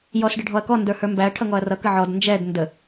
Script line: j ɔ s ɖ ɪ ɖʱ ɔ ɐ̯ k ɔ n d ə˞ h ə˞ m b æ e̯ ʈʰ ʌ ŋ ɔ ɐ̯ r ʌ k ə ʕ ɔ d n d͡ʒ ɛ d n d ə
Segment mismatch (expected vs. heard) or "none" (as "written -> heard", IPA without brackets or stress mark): e̯ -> ɐ̯